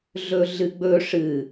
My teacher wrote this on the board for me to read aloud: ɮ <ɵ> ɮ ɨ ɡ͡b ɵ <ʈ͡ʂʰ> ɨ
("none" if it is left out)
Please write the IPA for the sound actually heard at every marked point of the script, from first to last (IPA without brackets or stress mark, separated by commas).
ɵ, ʂ